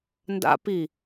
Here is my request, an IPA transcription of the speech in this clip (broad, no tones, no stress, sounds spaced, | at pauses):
n d a̰ p i